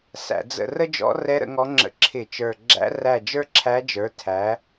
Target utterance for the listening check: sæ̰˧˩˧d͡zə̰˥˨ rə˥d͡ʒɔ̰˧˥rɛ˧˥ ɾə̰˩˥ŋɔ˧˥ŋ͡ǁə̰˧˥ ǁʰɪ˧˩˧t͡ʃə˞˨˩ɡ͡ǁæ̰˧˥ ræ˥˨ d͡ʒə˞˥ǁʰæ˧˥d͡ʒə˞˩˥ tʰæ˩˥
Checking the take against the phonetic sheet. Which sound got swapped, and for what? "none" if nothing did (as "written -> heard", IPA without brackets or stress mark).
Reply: none